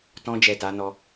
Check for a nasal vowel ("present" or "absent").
present